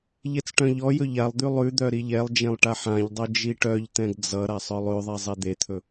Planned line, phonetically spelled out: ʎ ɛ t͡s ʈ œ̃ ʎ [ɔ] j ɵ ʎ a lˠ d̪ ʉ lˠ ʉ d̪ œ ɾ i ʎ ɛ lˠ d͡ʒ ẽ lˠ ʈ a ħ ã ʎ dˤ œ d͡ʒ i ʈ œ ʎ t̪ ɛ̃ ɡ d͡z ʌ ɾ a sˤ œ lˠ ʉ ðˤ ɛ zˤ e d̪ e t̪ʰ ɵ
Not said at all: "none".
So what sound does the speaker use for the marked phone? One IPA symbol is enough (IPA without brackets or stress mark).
ɔ